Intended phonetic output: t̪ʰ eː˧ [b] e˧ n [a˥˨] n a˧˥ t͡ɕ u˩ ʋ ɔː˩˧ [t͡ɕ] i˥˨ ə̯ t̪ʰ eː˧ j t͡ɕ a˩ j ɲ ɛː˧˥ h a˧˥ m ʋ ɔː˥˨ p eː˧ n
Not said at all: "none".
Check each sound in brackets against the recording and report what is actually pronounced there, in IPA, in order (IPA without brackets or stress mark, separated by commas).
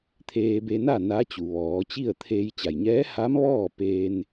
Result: b, a˥˨, t͡ɕ